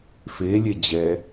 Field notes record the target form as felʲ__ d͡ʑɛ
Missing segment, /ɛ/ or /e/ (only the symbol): e